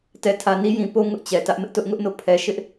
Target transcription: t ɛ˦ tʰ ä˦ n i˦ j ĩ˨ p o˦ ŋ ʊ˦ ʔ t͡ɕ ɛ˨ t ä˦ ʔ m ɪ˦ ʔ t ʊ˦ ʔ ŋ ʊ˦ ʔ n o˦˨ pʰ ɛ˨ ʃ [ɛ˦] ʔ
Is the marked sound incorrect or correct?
incorrect